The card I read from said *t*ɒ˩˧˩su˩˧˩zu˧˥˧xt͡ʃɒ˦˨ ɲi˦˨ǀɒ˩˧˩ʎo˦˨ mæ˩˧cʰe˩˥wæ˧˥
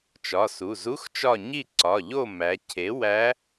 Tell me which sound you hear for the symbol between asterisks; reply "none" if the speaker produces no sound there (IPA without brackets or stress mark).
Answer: t͡ʃ